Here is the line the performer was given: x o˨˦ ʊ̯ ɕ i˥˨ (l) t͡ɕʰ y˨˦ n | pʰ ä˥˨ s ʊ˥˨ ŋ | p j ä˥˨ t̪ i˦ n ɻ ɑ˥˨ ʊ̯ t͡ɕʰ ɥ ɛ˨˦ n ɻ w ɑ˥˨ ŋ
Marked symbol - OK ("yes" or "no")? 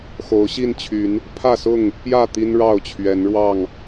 no